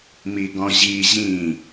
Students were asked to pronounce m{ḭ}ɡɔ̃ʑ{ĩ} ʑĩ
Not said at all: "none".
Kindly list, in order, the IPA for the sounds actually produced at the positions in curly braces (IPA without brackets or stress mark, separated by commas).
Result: i, i